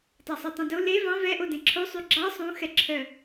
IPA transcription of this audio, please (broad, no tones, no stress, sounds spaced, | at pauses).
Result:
tˤ ɑ sˤ u tˤ ũ d o l e v ɑ̃ v ɛ ʔ o d ẽ ǁʰ o sˤ y ɡ͡ǁ ɑ sˤ ũ x ɛ ǁʰ œ